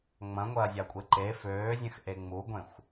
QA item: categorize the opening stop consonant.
ejective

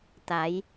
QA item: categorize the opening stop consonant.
plain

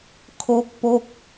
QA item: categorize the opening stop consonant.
aspirated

